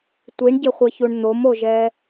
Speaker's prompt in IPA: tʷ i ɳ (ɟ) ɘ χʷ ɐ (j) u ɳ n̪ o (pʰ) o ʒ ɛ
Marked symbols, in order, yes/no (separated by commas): yes, no, no